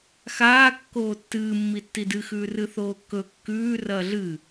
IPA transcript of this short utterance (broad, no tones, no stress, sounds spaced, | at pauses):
x aː kː oː tː ɨː mː i tː i d ɨ x ʉː r ɨ θ oː kː ɵ kː ʉː r ɐː ɮ ɨ